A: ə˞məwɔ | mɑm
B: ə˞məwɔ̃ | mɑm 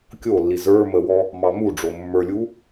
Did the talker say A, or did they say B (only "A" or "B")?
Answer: A